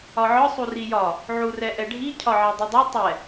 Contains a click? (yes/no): no